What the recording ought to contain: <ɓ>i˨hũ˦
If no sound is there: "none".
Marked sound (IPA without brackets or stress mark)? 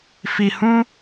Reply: f